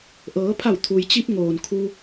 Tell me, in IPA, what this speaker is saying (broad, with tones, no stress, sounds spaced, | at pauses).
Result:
ʔ ɤː˩˧ pʰ a˧˩ w t̪ʰ u˩ j t͡ɕ i˧ p̚ ŋ oː˩ n kʰ u˧